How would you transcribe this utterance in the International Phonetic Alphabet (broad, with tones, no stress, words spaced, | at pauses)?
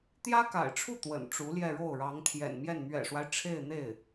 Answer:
t̪jä˥ka̰˨˩ɪ̯ʈ͡ʂʰu˥˩ t̪wə̰˨˩nʈ͡ʂu˧˥ljɛ˥˧ɻo˥˩ʊ̯ ɻɑ˧˥ŋt̪ʰjɛ̰˨˩nmjɛ˥˩n mɥɛ̰˨˩ʂwa˦ɪ̯ ʈ͡ʂʰe˥˧ɪ̯n̪e˥˩ɪ̯